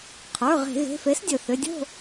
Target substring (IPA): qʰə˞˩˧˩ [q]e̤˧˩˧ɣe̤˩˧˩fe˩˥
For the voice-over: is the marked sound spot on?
no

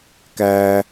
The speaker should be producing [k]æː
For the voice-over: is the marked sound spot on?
yes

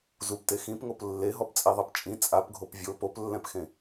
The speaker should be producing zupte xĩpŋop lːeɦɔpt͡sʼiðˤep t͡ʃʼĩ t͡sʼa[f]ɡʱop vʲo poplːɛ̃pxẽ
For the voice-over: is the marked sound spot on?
no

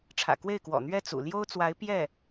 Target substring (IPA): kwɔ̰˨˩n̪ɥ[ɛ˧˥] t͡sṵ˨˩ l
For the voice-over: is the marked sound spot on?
no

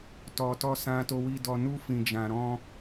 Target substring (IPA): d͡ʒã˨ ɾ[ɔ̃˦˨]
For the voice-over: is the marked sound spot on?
no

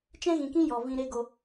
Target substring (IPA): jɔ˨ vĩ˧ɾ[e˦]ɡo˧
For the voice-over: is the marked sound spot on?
yes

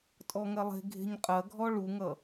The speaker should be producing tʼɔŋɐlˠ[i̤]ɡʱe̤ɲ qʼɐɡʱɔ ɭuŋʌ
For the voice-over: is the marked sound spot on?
no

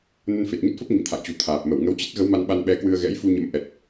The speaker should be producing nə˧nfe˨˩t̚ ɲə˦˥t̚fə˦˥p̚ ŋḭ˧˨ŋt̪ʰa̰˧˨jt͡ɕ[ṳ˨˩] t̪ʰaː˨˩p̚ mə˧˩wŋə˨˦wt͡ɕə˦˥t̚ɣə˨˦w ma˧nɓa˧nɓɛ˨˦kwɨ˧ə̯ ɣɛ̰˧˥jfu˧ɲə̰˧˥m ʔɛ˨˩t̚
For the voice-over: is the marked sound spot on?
yes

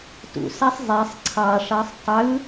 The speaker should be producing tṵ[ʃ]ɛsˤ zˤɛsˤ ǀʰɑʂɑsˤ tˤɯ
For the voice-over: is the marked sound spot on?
no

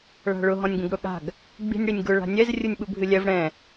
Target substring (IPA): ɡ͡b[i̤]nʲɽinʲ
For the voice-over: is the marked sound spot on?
yes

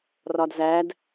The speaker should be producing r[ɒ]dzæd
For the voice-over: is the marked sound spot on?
yes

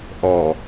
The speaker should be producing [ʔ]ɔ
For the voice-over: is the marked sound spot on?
yes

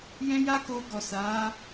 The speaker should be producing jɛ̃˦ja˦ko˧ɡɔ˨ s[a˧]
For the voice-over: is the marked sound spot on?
no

